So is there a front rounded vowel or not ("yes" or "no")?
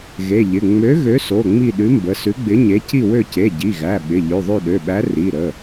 yes